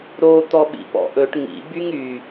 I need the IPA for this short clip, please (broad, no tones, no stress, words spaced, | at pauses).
ɾo t̪ɔɓḭpɔ̰ʔɵʈ ŋḭ byŋy